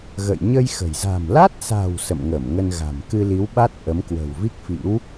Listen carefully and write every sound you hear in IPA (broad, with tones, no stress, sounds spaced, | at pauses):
ɣ ə̰˧˨ j ɲ ə˧ j x ə̤˨˩ j z a̤˨˩ m l a˦˥ t̚ s a̤˨˩ w s ə̰˧˨ m ŋ ə˧˩ m ŋ ə˧ n ɣ a̤˨˩ m k ɨ˧ l i˨˦ w ɓ a˦˥ t̚ ʔ ə˨˦ m k w ə̤˨˩ w v i˦˥ k̚ f ḭ˧˥ w